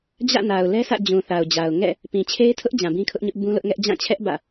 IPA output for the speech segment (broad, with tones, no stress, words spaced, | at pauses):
d͡ʑä̰˦˨na˨ʊ̯lɛ˦sʰä̰˦˨ d͡ʑũ˨θa˨ʊ̯d͡ʑa˨ʊ̯ ŋɛ̰˦˨ | pĩ˨t͡ɕʰe˦ɪ̯tʰʊ˦ʔ d͡ʑã˨bĩ˦kʰʊ˦ʔɲʊ˦ʔ bũ˦lʊ˦ʔŋɛ˦ʔ d͡ʑã˦˨t͡ɕʰɛ˦ʔ bä̰˦˨